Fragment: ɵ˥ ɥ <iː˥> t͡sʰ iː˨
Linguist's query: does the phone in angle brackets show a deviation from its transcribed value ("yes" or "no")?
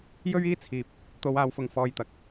no